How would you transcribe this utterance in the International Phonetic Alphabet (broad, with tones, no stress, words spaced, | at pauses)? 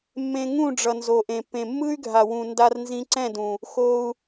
mːẽ˧ŋũ˦˨ɖ͡ʐʌ˨ nzo˨ʔẽ˨pːẽ˨ mːɯ˦y̯ɡʱa˨wũ˨ nda˧rnzĩ˧ǀɛ̃˦˨dũ˨ | xo˧u̯